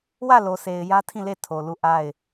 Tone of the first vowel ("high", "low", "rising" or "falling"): falling